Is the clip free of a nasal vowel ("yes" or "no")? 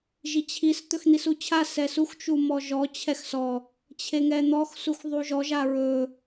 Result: yes